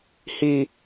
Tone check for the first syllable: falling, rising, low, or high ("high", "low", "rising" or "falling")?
high